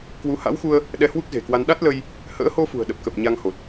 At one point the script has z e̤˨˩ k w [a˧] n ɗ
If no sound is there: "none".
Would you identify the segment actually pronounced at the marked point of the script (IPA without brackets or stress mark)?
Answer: a˧